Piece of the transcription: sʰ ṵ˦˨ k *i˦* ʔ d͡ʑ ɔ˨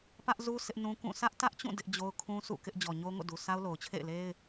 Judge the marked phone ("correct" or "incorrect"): incorrect